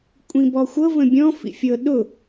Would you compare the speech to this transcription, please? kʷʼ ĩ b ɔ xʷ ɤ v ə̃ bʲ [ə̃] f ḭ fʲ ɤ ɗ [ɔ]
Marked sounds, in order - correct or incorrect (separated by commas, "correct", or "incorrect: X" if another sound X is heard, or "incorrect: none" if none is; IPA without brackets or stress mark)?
incorrect: ɔ̃, incorrect: ʊ